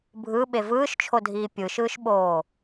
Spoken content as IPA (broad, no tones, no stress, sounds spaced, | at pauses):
bʱ ɯ ɓ e v ɯː ʃ t͡ʃʰ o dʱ iː pʲ ɯ ʃ ɯː ʃ ɓ oː